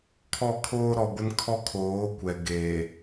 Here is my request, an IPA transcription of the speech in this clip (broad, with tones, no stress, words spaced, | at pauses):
kʰɔ˦˨kʰoː˦ɾɔ˨ɡʷɪ˦n kʰɔ˦kʰoː˨˦kʷɛ˨ ɡe˨